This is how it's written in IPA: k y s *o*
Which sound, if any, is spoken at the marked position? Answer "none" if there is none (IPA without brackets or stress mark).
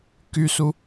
u